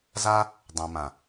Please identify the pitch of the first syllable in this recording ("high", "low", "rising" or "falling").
high